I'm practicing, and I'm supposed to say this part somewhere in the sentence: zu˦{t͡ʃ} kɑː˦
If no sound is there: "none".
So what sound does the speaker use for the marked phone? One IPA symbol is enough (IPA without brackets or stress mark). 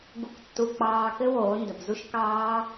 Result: ʃ